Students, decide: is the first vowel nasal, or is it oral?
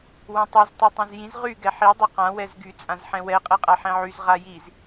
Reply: nasal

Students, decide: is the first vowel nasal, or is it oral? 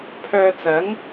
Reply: oral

